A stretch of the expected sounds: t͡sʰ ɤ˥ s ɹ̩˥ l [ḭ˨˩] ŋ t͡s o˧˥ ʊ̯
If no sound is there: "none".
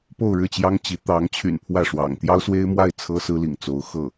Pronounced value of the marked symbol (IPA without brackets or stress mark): ḭ˨˩